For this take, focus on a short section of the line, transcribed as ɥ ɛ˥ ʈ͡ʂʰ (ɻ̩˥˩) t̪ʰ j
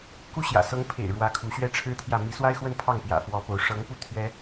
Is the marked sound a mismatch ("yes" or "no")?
yes